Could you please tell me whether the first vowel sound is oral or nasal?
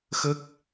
oral